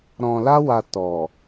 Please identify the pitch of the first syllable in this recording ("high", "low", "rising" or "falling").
low